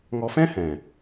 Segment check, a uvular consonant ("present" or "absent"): absent